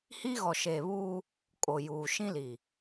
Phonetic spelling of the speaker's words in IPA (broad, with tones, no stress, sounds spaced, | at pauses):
h i˦ ɣ ɔ˨ ʃ eː˨ β uː˦ | kʼ o˨ j uː˨ ʃ ĩ˦ l i˨